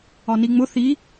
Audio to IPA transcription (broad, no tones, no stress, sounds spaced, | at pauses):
ɒ n i ŋ͡m ʊ θ i